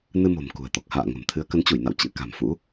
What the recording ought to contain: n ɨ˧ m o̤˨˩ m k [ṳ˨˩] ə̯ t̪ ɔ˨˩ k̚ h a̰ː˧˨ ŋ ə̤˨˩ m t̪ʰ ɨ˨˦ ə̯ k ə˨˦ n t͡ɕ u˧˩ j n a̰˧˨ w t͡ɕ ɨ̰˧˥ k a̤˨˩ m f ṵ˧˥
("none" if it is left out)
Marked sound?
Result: ṳ˨˩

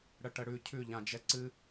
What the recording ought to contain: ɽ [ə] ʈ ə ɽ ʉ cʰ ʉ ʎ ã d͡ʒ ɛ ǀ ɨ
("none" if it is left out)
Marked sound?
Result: ə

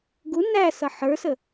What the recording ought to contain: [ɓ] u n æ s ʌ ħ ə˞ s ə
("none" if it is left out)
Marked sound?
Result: ɡ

